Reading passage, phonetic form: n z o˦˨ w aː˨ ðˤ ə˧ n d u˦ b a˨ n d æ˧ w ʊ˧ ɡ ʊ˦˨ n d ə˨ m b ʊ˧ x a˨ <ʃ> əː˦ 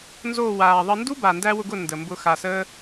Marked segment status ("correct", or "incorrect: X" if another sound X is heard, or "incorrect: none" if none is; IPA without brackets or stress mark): incorrect: s